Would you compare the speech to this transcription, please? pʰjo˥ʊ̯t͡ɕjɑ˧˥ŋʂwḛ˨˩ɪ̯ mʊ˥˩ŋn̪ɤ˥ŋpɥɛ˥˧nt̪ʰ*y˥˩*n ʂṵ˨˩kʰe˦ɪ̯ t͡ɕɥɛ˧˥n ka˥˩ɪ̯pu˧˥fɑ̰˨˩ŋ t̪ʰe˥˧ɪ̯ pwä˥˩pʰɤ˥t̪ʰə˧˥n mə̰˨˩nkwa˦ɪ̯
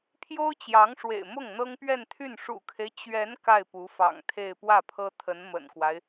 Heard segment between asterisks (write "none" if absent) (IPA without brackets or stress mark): y˥˩